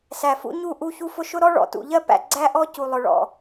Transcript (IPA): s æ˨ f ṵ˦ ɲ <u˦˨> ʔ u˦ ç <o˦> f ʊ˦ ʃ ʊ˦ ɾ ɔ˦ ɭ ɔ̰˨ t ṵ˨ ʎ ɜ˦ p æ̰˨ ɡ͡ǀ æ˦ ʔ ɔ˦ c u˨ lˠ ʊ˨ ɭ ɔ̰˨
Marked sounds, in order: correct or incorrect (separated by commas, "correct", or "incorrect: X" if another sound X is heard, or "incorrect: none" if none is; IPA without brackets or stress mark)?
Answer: correct, incorrect: u˦